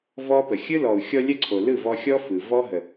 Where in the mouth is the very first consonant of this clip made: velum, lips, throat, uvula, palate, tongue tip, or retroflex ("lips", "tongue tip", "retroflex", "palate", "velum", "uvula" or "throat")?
lips